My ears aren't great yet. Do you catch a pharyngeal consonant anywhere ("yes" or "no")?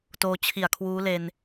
no